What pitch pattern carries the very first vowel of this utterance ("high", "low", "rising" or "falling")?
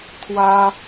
high